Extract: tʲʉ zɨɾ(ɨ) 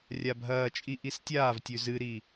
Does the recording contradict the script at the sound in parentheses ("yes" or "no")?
yes